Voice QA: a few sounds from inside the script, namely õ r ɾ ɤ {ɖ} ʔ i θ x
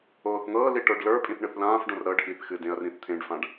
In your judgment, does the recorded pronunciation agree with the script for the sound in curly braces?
yes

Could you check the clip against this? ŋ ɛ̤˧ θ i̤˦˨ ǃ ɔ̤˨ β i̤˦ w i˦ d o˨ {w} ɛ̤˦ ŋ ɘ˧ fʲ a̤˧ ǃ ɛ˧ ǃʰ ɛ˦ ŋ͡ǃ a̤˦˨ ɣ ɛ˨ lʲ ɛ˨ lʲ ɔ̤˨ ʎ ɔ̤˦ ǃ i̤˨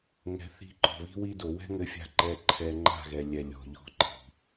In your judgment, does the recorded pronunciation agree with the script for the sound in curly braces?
yes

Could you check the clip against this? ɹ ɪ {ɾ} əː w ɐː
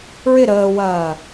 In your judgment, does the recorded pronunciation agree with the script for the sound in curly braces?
yes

